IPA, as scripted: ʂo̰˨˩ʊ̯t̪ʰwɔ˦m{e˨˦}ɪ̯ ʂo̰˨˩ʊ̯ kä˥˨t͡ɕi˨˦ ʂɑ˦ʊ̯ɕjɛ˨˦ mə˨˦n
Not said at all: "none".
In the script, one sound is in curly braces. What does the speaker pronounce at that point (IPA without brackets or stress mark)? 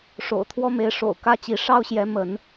e˨˦